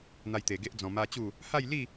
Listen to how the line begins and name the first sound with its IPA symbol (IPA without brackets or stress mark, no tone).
n̪